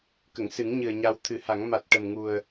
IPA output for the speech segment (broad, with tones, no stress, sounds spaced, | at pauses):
k ə˨˩˨ ŋ s ɨ˨˩˦ ŋ ɲ ɨ˨˩ ə̯ ɲ a˧ w t̪ʰ ɨ˨˩˦ h a˨˩˦ ŋ m a˨˩ t̚ ʈ ə˨˩ m ŋ u˨˩ ə̯